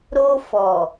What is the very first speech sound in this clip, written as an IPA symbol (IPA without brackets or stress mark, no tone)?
ɾ